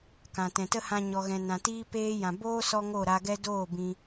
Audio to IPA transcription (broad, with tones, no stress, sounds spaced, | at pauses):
k ã˨ t ɛ̃˨ t ə˦ h ã˧ ɲ ɔ˨ ɣ ɛ̃˨ n ã˨ t iː˧ p eː˦ j ã˨ b oː˦ s ɔ˦ ŋ o˦˨ ɾ a˧ ɡ ɛ˦ d oː˦˨ b ĩ˧